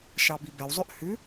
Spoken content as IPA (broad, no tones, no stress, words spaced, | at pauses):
ʃɑbibɛwzˤʉʔ hʉ